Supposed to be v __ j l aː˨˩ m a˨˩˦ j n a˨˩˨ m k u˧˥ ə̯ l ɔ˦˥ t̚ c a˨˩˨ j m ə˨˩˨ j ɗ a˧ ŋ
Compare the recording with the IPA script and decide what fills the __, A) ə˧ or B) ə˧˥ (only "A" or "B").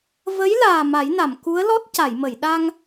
B